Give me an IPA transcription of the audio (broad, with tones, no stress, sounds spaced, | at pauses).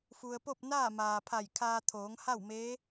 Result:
f u˩ ə̯ p o˥˨ p̚ n aː˥˨ m aː˩ pʰ a˧˩ j kʰ aː˧ t̪ʰ oː˩˧ ŋ h a˥˨ w m eː˧˥